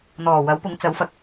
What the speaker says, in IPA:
n̪ɔː˨˩ wɐ˨˥wpʊ˨˥ŋ t͡sɐ˨˥wfɐ˨k̚

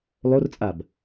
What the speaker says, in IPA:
lˠort͡sʼab

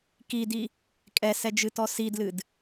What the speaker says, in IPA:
kidi | kʼɛsɛd͡ʒɨtɔ sidlɨd

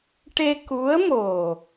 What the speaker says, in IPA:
ʈe˧ ku˧˥ə̯mo˨˩

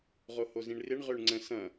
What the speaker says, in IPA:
ʁohozĩɳrɪɳ ʁøɳŋ͡ǀə̃ sɐ̃

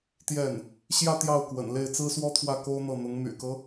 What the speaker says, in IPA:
t̪jɛ˥˩n | ɕjä˥˧ t̪jɑ˥˩ʊ̯kwə̰˨˩nle˥˩ɪ̯ t͡sɹ̩˥swɔ˥t̪ʰwä˥˩ ko˥ʊ̯n̪ɤ˥˩n̪ʊ˧˥ŋ my̰˨˩kɤ˦

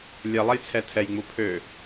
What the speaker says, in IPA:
lʲɛlˠɛjt͡sʰɛ tʰɛjŋ͡mu pʰø

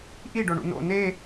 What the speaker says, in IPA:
ʔiɖoɳṵ no̰ ne

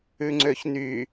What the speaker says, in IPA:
ʉŋ͡ǀøçny

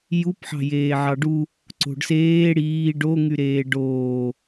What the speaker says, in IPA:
jupħɑ̤ jeːʕɑɖu | ǀo̤ɖseː ɽiː ɖoŋyɾeː ɖoː

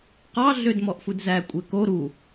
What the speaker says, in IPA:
qɑ ɮødmɔʔfudzæ kʷʼeko ɾu

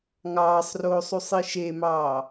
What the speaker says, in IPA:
ŋɑːsˤroːsˤ usˤiʃemɑː

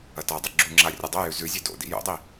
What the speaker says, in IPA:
ɐtadˤi ɡ͡ǁuŋ͡ǁa rʲɐdˤojʉ zʉzʲe do̰dḭ jo̰dˤi

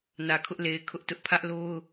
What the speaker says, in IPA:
nä˨kʰʊ˦ʔle˨ɪ̯ kʰʊ˦ʔtʊ˦ʔ pʰä˦ʔlo˦ʊ̯

